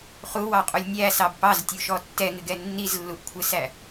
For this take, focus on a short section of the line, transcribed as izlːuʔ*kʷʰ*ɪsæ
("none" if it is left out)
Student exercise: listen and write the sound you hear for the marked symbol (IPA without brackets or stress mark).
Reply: kʷʰ